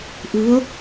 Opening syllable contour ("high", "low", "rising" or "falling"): rising